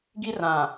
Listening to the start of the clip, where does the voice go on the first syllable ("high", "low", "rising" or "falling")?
high